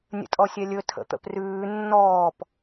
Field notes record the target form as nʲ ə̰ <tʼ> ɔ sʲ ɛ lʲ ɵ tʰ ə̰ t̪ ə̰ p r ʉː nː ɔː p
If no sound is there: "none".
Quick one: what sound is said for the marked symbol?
tʼ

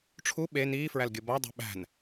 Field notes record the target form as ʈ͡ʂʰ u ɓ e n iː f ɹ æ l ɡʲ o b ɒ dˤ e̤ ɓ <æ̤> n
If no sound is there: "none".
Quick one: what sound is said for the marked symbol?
æ̤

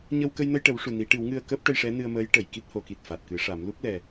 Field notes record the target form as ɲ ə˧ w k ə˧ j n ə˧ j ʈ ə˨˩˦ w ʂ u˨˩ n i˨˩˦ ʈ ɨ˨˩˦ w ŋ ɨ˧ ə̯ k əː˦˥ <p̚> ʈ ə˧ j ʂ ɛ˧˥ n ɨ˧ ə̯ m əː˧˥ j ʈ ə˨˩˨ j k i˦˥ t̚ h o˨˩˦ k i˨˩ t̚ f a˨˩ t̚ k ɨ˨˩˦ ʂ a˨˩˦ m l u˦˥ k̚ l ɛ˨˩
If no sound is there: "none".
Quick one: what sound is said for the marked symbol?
p̚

